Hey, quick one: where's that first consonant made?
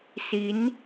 tongue tip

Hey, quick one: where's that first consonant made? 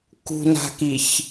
velum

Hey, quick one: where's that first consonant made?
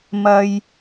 lips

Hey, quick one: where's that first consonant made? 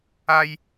palate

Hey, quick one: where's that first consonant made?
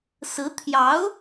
tongue tip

